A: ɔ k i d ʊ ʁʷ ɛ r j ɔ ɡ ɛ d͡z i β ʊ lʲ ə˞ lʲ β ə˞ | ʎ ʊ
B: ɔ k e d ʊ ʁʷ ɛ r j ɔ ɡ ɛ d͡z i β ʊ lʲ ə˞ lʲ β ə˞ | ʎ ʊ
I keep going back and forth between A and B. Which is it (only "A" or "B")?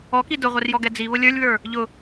A